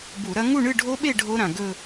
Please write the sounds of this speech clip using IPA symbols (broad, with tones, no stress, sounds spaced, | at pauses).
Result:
b u˧˩˧ ɾ ɐ˦˥ ŋ u˥˧ ɳ ɨ˥˧ ɖʱ o˦˥ ɓ e˥˧ ɖʱ o˦˥ ɾ ã˩ ɡ ɵ˥˧